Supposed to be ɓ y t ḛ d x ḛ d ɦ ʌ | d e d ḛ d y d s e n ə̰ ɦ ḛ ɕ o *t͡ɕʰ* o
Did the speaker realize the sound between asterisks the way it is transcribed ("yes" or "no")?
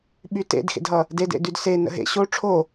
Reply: no